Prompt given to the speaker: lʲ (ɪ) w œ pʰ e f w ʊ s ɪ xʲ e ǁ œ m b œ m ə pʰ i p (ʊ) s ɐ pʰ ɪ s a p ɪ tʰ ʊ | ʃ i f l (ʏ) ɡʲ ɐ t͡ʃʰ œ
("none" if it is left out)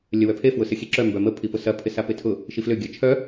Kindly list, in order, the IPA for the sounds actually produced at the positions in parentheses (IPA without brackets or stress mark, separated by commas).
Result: ə, ʊ, ʏ